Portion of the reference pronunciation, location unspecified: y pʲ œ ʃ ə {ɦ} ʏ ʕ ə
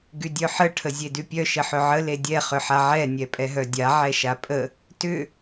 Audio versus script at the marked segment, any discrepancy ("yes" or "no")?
yes